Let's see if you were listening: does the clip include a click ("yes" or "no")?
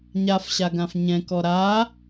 no